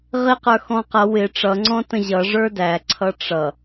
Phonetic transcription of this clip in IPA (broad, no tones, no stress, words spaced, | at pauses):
ʁiq ə˞xɔ̃qʌ wɪ ʈ͡ʂʌ ŋ͡ǀɔ̃tə̃ʑʌ ʐə˞dæ ǀʰʌʈ͡ʂʌ